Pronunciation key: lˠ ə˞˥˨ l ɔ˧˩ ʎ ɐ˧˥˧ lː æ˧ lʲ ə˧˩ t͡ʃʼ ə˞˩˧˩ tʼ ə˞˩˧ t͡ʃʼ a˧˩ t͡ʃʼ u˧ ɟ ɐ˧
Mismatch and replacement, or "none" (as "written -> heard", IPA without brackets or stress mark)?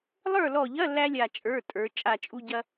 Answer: ə˧˩ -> a˧˩